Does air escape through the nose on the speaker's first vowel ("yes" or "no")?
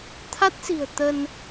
no